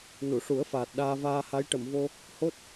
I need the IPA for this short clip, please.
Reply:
n u˨˩˨ ʂ u˨˩˦ ə̯ f aː˨˩ t̚ ɗ aː˧ v aː˧ h a˧˥ j ʈ ə˨˩˨ m v o˧ | h o˦˥ t̚

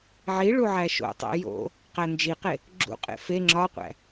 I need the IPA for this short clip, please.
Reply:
ʕ i ɭ u ʕ æ ʃ o̰ tˤ æ̰ j o̰ | q æ n d͡ʒ i q e | ɡ͡ǁ ṵ qʼ ḛ f e ŋ͡ǁ ɒ qʷ æ̰

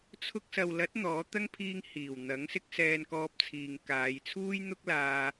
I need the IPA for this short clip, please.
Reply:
t͡sʰ ʊ˧ k̚ s ɐ˨ w l ɐ˨˥ t̚ n̪ ɔː˨˥ t̪ ɐ˥ ŋ pʰ iː˧ ŋ h iː˨˩ w n̪ ɐ˨˥ ŋ s ɪ˧ k̚ s ɛː˨ n k ɔː˧ p̚ t͡sʰ iː˨ ŋ k aː˨˧ j t͡sʰ uː˥ j n̪ ʊ˥ k̚ l aː˧

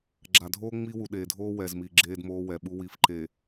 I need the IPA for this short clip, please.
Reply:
ɡ͡ǁ a˨ dʱ oː˦ ŋ͡m i˦ w u˨ ɗ eː˨ dʱ oː˦ w ɛ˨ z m i˨ ɡ͡ǁ eː˦ d m oː˦ w ɛ˨ ɓ u˦ w i˨ f ǃ e˨

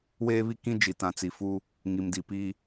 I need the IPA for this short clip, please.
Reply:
w eː˦ β i˦ k ĩ˦ d͡ʒ i˨ t ã˨ t͡s i˨ f u˦ | ŋ i˨ m d i˨ p i˦

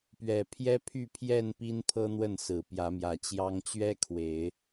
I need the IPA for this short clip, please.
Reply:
p ɥ ɛ˨˩ pʰ j ɛ˦ pʰ y˥˨ pʰ j ɛ˥˨ n p i˦ n pʰ ɤ˦ n̪ w ə˥˨ n s ɹ̩˨˩ p j ä˨˦ m j ä˨˩ t͡ɕ j ɑ˦ ŋ t͡ɕ ɥ ɛ˦ kʰ w e˨˦ ɪ̯

